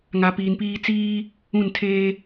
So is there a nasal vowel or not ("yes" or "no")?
yes